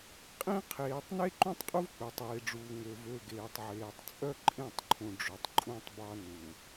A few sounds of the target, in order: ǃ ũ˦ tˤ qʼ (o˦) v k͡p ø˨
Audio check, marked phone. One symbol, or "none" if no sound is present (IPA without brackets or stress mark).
u˦